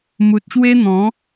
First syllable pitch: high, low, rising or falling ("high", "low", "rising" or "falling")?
low